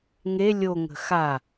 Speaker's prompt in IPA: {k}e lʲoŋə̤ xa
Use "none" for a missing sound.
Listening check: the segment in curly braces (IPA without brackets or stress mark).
ŋ